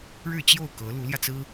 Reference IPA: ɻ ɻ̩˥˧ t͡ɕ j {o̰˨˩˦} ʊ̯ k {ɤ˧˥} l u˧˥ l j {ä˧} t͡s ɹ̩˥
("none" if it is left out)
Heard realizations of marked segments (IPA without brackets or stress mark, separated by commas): o˥˩, ɤ˧˥, ä˧